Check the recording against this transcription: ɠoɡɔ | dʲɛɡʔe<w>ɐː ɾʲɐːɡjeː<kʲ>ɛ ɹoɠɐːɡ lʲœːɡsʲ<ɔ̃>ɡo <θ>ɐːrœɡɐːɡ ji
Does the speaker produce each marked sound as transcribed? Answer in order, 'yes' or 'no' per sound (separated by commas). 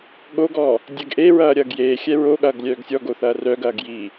no, no, no, yes